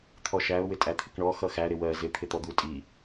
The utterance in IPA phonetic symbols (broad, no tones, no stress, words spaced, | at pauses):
t̪ʰɔʃæʊ̯ wɪtʼæt̪ʰɪkɳɔ xʌxæ ɾɪwɜ zɪ t̪ʰɪt̪ɔd̪u tʼi